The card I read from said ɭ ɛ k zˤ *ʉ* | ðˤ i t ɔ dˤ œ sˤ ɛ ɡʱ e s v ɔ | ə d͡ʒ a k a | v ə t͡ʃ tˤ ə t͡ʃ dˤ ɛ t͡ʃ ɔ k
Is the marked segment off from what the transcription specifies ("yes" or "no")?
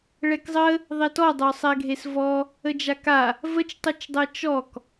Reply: yes